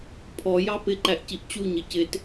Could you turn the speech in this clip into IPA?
pʰ ɔ j ɑ p ɪ ǃ æ ʔ c i ʔ t͡ɕ u ɲ ɪ c ɪ t

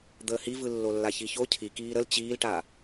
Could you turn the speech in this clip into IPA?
d̪ əː h i v ɯ lː o lː a ç i ç o cʰ i k iː ɾ ə l t͡ɕ iː l ʈ a

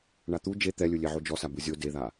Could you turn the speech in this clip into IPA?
ɳ a t̪ u d͡ʒ e t̪ ɛ lʲ ɯ lʲ e ʕ o d͡ʒ ɔ s a b ɯ zʲ o d e ð a

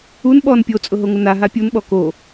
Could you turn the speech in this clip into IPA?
u n ɓ ɔ n pʲ o t͡sʼ ʊ ɦ o ŋ ʊ n a ɦ a pʲ u n ɓ ɔ k o

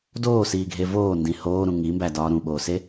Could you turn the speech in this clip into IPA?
d oː s iː ɡʱ e v oː n d ĩ h oː ɾ ũ ŋ i m b æ d ɒː ɾ ũ ɓ oː s e

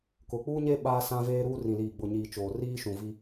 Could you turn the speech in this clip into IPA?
k ʊ˨ k͡p uː˦ ɲ e˦ ɓ aː˦ s ã˦ v eː˦ ɾ uː˦ r ĩ˨ l iː˨ ɡ͡b ʊ˨ ɲ iː˨ t͡ʃ oː˨ r iː˦ ʃ ũ˨ v i˦

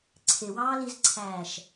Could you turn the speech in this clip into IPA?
ǀʰ e w ɑː l i z ǀʰ æː ʃ

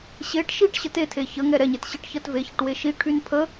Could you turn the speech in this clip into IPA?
ɕ e ʈ ʃ i ʈ ɕ ə t e tʰ e ç ə ŋ ɛ ɾ ɛ ɲ e t ɕ i ʈ ç ɜ t v e ç ə ʈ w e ʃ i ʈʰ y n pʰ ə

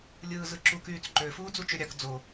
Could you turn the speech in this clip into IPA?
lʲ ɯː z ɯ ǁ u k yː t͡s ǃ ø f uː d͡z u t͡ʃ ø ɾʲ ɑ k d͡z o

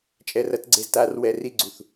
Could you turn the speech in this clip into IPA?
t͡ʃʼ ɛ˧ r ɐ˦ t ɡ͡ǀ e˧ z t aː˦ r w ɛ˧ r i˦ ɡ͡ǀ u˨ θ

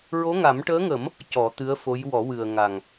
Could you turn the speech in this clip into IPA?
ɹ o˧˥ ŋ a˨˩˦ m ʈ əː˧˥ ŋ ə˨˩˦ m | c ɔ˨˩˦ t̪ ɨ˧˥ ə̯ f o˧˥ j w ɔ˨˩˦ w ɨ˨˩ ə̯ ŋ a˨˩ ŋ

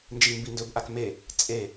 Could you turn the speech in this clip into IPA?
n d͡ʒ i m b i n d ɵ b ʔ a k m e | t͡sʼ e

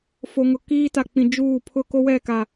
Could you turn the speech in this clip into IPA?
f o˨ ŋ ʊ˨ k iː˦ t a˨ k͡p ĩ˨ d͡ʒ uː˦˨ pʰ ʊ˦ k o˦ w ɛ˦˨ k a˨

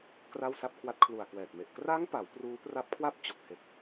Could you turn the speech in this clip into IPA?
k r a˥˩ w s a˥˩ p̚ kʰ w a˦˥ t̚ kʰ l u˨˩ a̯ k w ɛː˨˩ t̚ m e˨˩ ʔ k r a˦˥ ŋ p a˩˦ w p r uː˦˥ p r a˦˥ p̚ kʰ w a˥˩ p̚ t͡ɕ o˨˩ k̚ h e˨˩ k̚

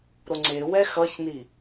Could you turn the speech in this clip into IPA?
ɾ o ŋ͡ǀ e w ɛ x ʌ ç n i

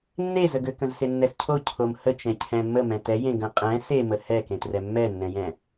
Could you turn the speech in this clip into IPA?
nː e z ə ɡ ø k ə̃ z s e nː ɛ s cʰ o cʰ o m h ə t͡ʃ ɛ̃ cʰ ɛ̃ mː ə m ɛ̃ t ɛ j ẽ ɡ ə̃ qʼ ɛ̃ s e m ə h ɛ k ẽ t r ɛ mː ɛ nː ɛ̃ j ɛ̃

